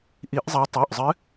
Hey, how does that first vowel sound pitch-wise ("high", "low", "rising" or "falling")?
rising